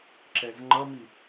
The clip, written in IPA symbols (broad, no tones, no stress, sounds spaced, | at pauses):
ǁ ɛ z ŋ͡ǃ ʌ m i